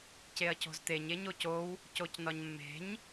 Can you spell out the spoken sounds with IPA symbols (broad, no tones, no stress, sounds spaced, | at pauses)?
c e ɐ̯ c o̤ z t̪ e ɲ e ɲ o c o w | c o c n ɒ ɲ mː e̤ ɲ